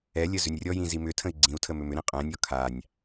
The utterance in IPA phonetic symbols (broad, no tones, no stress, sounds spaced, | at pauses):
ɛ lʲ ə z ʏ nʲ rʲ ɔ j ĩ z i m ʏ tʰ ə̃ i̯ ɡ͡ǀ ĩ u̯ tʰ ə m ʏ m ʏ ɾ ĩ qʼ ɛ̃ nʲ ɔ kʰ a nʲ